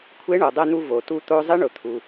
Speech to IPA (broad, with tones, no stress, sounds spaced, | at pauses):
kʷʰ e˧˥ ɳ o˩ dˤ ɛ˧ n̪ u˧ v o˩ t u˧ t̪ o˧ zˤ ɪ˧˥ ɳ ʊ˩˧ t̪ʰ u˩